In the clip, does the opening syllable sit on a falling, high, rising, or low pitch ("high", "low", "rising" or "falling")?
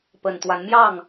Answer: low